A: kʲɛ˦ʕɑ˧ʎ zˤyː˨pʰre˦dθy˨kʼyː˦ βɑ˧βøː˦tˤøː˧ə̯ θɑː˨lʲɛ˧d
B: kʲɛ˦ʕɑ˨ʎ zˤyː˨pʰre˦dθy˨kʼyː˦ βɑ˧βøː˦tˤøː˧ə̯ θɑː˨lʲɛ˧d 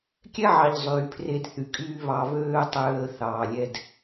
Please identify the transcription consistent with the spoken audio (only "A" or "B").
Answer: B